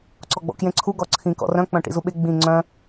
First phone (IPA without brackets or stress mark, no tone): ǀ